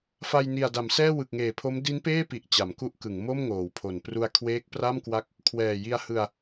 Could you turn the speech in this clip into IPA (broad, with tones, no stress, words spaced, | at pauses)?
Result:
fa˧jni˨˩a̯da˩˦msɛː˥˩ wɯ˨˩k̚ŋeː˨˩pʰo˦˥m di˦˥npeː˥˩pi˨˩ʔ t͡ɕa˩˦mku˦˥ʔkɯ˩˦ŋ mo˥˩mŋoː˩˦wpʰo˩˦n pru˧a̯kʰweː˦˥k̚pra˥˩m kwa˥˩k̚ | kʰwɛː˨˩ji˧a̯hɯ˧a̯